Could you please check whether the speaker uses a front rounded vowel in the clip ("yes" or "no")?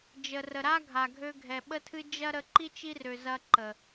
yes